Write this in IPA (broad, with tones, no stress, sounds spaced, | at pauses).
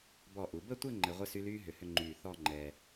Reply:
b ɔ˧˩ ʔ u˩˧ b ə˥˧ tʷ ɘ˥˧ ŋ͡ǃ ɘ˧ ʁʷ ɘ˥ s y˥ l yː˥ ɦ ʏ˧ h ʏ˥˧ ŋ͡ǃ yː˧˩ θ ɔ˥˧ ŋ͡ǃ ɛ˧